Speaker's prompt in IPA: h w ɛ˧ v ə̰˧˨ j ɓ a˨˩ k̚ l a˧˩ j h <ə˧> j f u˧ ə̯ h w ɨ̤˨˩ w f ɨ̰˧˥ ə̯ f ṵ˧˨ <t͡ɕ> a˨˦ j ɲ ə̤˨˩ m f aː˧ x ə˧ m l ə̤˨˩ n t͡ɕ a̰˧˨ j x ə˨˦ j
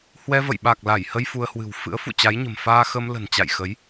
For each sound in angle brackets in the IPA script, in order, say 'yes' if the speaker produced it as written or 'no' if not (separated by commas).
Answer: yes, yes